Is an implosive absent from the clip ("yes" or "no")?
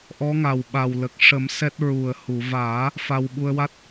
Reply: no